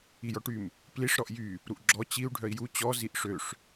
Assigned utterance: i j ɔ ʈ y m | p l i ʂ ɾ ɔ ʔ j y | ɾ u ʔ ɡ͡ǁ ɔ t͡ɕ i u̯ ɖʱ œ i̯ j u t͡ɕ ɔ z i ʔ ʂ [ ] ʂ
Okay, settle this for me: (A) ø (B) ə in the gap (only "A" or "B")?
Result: A